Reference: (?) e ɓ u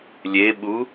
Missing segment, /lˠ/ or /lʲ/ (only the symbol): lʲ